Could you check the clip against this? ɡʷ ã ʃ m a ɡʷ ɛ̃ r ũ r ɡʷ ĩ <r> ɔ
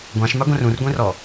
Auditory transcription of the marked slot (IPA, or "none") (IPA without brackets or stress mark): r